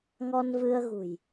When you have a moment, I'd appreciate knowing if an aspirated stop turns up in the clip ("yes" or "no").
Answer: no